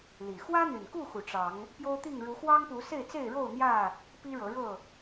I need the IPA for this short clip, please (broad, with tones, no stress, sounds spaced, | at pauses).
l i˨˩ x w ä˦ n̪ y˨˩ n k u˥˨ x u˨˩ ʈ͡ʂ ɑ˨˦ ŋ | p j o˦ ʊ̯ t̪ i˥˨ ŋ ɻ u˨˦ x w ɑ˦ ŋ p u˨˦ s e˥˨ ɪ̯ t͡s e˥˨ ɪ̯ ɻ o˥˨ ʊ̯ n̪ j ä˥˨ | p i˦ ɻ ɤ˨˦ ɻ ɤ˥˨